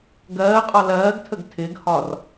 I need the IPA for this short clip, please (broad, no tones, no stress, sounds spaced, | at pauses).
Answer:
ɡ ɜː qʼ ɒ l ɜː ɡ tʰ ə ɡ tʰ ɪː ɡ h ɒː r